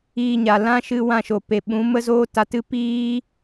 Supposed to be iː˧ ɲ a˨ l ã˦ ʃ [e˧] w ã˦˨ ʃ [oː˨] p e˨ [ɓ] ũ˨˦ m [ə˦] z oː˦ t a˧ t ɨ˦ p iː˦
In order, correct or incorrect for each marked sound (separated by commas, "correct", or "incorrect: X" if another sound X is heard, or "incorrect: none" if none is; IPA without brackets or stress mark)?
incorrect: ɨ˧, incorrect: o˨, correct, correct